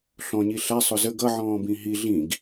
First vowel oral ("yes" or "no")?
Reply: no